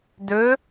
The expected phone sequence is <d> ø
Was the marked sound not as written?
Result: no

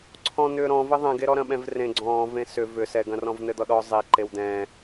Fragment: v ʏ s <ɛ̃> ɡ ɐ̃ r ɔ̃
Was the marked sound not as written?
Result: yes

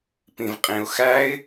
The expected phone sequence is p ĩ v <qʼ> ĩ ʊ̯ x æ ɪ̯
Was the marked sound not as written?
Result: no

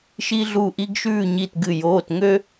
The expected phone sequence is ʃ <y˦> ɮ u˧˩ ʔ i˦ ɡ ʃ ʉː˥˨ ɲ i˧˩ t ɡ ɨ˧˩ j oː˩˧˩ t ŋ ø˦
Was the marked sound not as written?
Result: yes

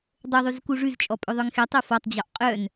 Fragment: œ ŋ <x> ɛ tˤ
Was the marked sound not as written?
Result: no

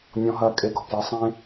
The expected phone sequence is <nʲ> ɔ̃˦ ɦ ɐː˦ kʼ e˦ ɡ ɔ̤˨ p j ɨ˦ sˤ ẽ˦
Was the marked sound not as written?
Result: no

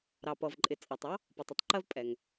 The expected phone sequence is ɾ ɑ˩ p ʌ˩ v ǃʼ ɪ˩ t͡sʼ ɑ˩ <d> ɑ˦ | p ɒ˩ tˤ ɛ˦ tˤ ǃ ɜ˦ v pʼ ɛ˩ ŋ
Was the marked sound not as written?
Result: yes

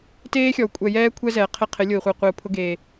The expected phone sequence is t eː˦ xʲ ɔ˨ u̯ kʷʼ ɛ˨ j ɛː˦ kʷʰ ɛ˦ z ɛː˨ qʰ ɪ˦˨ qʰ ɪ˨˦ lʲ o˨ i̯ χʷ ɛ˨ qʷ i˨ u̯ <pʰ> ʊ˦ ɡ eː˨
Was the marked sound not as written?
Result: no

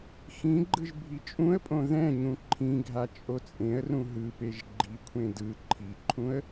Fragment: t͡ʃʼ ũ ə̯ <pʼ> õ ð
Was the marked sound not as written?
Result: no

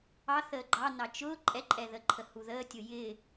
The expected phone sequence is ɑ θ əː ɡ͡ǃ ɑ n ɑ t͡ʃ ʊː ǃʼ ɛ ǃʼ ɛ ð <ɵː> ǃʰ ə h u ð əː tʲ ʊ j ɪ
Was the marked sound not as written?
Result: yes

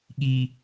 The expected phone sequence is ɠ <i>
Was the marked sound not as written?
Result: no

